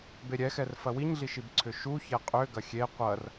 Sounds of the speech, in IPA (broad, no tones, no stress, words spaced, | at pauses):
beɾʲɛxɛr fɐwiɲɮiʃib ǀʰʏʃu çɛqʼʏ ɡɐxʲe qʷɐr